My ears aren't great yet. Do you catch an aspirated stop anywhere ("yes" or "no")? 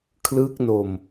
yes